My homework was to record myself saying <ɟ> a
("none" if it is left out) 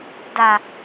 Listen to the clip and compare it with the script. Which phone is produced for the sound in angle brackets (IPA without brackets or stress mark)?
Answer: d